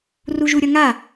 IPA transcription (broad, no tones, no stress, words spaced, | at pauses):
ruʒuɾʲʌŋa